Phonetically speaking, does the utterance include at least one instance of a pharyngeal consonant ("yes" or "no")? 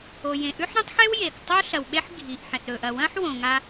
yes